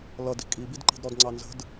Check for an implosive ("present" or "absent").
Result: absent